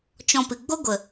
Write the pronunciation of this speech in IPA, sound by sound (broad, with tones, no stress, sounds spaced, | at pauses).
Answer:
t͡ʃ ɔ̃˧ p ɨ˨ ɡ͡b o˦ ɡʷ ə˨